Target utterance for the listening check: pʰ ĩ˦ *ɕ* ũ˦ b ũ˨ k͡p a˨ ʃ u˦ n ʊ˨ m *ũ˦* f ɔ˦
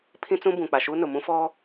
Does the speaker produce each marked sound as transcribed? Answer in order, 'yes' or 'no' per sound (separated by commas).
no, yes